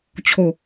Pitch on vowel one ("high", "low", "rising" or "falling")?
low